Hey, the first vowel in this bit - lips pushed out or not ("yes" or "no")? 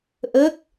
no